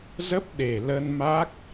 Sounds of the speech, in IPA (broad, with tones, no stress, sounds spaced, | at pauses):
z ə˦˥ p̚ ɗ e˨˩ l ə˧ n m a˦˥ k̚